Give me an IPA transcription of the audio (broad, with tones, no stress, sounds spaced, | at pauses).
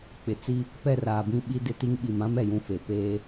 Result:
k͡p ɪ˨ t͡s i˦ | p ɛ˦˨ r aː˨ b ĩ˦ ɓ i˦ d ɪ˦ t i˦ ŋ ɓ i˨ m ã˦ m ɛ˨ j ũ˦ f e˨ p eː˦